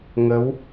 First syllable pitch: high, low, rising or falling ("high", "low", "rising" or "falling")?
rising